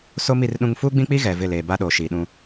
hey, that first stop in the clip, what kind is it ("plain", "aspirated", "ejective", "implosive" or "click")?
implosive